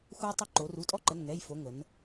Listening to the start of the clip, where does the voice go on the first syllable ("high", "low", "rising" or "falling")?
high